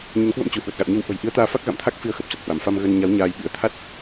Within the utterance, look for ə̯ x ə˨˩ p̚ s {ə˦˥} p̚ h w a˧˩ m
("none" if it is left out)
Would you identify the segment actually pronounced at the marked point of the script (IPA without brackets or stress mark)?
ə˨˩